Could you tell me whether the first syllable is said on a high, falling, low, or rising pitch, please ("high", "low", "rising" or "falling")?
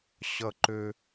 high